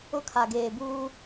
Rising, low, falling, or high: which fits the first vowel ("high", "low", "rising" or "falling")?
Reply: high